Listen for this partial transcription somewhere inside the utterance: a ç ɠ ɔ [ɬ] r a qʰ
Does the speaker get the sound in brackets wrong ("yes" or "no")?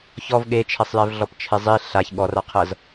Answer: yes